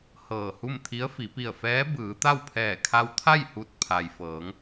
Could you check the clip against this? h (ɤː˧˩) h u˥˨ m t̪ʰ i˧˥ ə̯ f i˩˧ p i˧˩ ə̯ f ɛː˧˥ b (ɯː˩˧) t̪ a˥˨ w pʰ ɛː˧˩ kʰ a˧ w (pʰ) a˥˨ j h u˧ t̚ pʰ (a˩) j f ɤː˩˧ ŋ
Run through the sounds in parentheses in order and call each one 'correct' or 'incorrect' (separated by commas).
correct, correct, incorrect, correct